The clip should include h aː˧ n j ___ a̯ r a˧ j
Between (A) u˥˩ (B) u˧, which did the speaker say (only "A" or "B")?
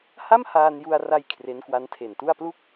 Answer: B